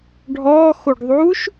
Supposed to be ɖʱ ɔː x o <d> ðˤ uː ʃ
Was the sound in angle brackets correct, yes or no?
no